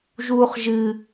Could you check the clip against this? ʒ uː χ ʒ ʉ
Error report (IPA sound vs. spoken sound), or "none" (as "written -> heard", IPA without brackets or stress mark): ʉ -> ɨ